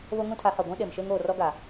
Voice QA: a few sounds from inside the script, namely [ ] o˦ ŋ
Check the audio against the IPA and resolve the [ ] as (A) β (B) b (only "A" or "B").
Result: A